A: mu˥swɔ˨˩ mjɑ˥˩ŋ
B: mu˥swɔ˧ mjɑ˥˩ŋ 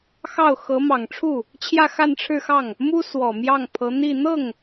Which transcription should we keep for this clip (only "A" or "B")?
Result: A